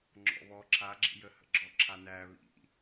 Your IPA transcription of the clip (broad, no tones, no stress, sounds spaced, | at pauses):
ŋ͡ǁ ɔ̰ β ɔ ǁʰ a ɡ͡ǁ ḭ j ə h ə̰ ɡ͡ǁ ɔ ǁʰ a n æ β ḭ